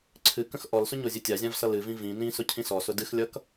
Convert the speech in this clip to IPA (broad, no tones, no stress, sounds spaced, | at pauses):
ǀʰ ɨ k ə̃ x ʔ ɔ l s ʊ ɲ o zʲ ɨ tʲ a zʲ ã v s ʌ l ɨ v ĩ v ĩ n ĩ s ʊ cʰ ĩ s ɔ s ʊ d ɨ x lʲ ʌ k